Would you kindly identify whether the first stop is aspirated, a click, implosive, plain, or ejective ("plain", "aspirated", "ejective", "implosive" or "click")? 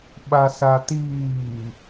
implosive